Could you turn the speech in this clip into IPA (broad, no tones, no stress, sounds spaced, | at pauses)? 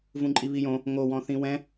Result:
v ũ ǃʼ i β i j õ | ŋ o w ɔ̃ θ ĩ w ɛ̃